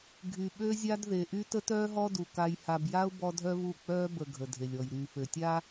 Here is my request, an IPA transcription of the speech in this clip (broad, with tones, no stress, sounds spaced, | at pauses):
ɡʱ y˨ ɓ ø˦ zʲ a˦ d ð e˨ ʔ y˦ t ə˦ t œː˦ ɦ ɔ˦ d u˨ k a˨ j h a˨ b j a˦ ʊ̯ b ɔ˦ dʱ œ˦ β u˦˨ k͡p œː˦ b ə˨ ɡʱ ə˨ dʱ e˨ lʲ ɔ˨ j ɾ yː˨ f ø˨ tʲ a˦